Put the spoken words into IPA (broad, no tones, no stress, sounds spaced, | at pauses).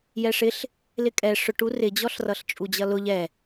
j ɛ ʂ ɪ ɬ | l ɪ kʼ ɛ ʂ ʊ ʈ u r ɪ d͡ʑ ɔ ɬ r ʌ ɬ t͡ʃʼ u d͡ʑ ʌ l ʊ ʎ ɛ